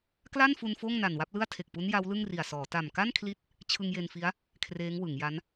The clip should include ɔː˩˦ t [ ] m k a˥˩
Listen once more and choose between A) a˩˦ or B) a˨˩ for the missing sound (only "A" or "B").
B